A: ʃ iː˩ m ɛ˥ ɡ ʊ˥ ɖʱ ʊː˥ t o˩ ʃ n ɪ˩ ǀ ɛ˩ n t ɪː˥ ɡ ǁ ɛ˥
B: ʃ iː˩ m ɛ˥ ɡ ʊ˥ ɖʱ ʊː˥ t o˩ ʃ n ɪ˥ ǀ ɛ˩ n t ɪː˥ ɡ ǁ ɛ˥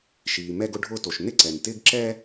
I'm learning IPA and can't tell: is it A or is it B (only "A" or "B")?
B